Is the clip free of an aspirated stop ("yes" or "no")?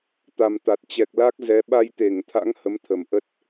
no